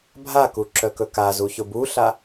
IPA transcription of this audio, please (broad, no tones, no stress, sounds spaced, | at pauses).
bʱ a k u ǁ œ k ɵ k a z u ç ʊ b u ɬ a